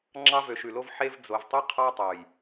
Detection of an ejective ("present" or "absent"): absent